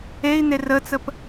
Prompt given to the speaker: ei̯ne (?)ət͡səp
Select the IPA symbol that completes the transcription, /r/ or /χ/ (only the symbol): r